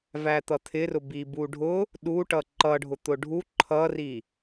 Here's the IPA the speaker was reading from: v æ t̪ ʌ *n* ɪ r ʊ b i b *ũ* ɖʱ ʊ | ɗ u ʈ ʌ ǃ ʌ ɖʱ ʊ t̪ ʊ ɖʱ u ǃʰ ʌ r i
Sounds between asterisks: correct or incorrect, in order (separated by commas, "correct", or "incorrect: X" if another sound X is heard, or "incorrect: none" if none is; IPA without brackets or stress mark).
incorrect: t̪ʰ, incorrect: u